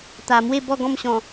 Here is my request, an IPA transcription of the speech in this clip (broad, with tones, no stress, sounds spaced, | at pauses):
t̪ a˨˩ m w e˥˧ b ɔ˥˧ ɡ ɔ̃˥˧ m ɕ ɔ̃˨˩